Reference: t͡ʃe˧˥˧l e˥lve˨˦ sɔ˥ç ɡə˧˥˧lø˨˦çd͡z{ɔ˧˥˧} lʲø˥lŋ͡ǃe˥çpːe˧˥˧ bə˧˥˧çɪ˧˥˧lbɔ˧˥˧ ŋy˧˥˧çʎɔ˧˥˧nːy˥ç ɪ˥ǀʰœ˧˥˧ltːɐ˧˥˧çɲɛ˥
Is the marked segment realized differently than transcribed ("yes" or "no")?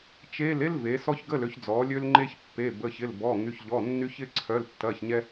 yes